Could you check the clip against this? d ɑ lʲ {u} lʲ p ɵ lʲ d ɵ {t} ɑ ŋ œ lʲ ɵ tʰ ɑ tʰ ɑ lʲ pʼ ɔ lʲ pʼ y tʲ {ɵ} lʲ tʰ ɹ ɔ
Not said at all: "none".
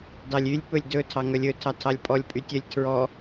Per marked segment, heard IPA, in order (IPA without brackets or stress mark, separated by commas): y, tʰ, œ